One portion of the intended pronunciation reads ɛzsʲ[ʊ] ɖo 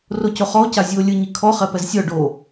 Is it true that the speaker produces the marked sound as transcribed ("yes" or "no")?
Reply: no